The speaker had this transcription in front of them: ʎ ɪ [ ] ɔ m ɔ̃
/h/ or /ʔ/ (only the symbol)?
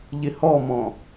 h